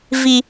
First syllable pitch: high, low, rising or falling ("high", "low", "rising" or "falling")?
low